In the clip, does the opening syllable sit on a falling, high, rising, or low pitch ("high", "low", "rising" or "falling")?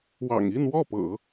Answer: low